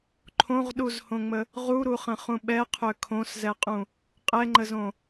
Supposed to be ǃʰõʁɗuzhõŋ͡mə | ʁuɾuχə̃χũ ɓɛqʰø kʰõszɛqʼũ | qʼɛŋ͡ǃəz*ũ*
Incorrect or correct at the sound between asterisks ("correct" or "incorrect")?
incorrect